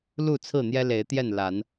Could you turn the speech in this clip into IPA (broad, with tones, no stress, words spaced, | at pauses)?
lu˥˨ t͡sʰɹ̩˥˨n̪jɛ˦le˨˦ɪ̯t̪jɛ˥˨n la˨˦n